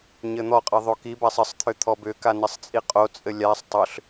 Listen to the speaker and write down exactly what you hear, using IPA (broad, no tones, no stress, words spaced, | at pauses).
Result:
ɲɘn̪ɔqʼɘ ðˤokibasˤ ɘsˤt̪ʰʏ t̪ʰɔbʏka nɘsˤt͡sʼiqʼot͡sʼɘ lʲasˤ tˤʏɬ